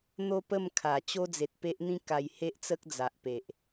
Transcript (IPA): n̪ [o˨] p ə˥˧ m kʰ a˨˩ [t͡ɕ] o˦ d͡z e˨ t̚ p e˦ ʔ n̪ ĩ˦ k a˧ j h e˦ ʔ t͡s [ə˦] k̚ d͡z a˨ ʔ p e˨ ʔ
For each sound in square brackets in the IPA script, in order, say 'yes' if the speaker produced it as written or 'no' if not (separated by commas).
no, yes, yes